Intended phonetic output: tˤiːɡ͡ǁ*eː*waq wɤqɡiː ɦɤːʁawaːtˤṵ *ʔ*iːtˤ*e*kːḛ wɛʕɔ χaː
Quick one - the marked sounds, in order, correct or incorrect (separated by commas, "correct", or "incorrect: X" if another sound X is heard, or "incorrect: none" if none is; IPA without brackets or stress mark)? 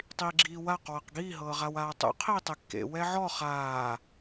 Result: incorrect: iː, incorrect: qʰ, correct